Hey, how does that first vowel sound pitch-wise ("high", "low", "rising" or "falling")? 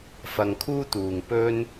low